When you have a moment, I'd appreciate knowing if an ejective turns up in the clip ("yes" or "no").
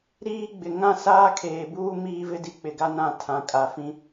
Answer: yes